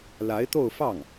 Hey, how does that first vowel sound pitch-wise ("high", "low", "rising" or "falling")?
rising